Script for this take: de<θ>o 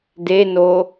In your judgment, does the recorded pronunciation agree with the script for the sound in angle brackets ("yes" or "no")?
no